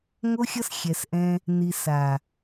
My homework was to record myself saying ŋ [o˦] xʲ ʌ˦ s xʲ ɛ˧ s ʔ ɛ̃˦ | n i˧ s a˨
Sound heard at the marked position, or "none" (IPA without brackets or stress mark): o˦